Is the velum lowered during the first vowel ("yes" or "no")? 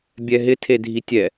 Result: no